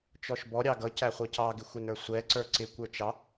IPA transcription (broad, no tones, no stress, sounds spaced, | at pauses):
t͡ʃ ɔ ʃ b ɔ ɾʲ ɑ ɡ ʌ c æ χʷ ʌ c ɑ ɡ ɪ xʷ ɪ n ə˞ sʷ ɛ ǀ ə˞ ǀ ɪ kʷ ə˞ t͡ʃ ɑ